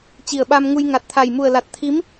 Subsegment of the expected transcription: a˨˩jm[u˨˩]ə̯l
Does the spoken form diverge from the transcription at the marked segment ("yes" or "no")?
no